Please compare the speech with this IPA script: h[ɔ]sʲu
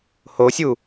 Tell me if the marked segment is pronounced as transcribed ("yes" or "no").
no